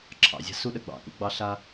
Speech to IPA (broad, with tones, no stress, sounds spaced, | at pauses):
ǁʰ ɑ̰˨ zʲ a̤˧ s u˧ ɗ ə˨ ɡ͡b ɑ̰˨ k ṵ˧ ɡ͡b ɑ˧ ɬ a˧